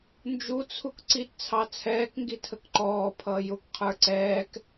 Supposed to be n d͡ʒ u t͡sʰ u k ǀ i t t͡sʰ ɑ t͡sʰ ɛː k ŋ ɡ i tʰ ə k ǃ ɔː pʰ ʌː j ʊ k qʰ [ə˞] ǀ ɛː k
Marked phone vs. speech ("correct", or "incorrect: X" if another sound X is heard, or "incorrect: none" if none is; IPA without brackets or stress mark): correct